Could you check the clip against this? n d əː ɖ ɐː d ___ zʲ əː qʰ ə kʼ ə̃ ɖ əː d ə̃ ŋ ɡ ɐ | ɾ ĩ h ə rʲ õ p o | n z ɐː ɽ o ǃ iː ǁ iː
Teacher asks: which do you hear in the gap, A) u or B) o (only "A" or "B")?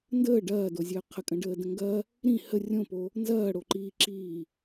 B